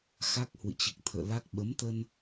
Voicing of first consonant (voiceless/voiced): voiceless